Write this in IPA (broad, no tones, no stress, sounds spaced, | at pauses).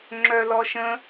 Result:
ŋ͡ǁ œ l ɔ ʃ ə̃